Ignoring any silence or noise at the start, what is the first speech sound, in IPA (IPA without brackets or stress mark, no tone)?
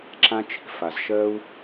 ǁ